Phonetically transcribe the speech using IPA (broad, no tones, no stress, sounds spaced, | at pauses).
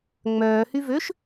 ŋ͡m œː h y v ø ʃ